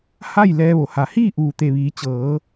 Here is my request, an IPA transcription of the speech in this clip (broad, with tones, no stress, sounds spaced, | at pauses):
h a˥˨ j l ɛː˧ ʋ o˩ h a˩ h iː˥˨ ʔ uː˩ t̪ e˩ ʋ iː˩˧ t͡ɕ ɤː˩˧